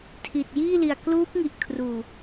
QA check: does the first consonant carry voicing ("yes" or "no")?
no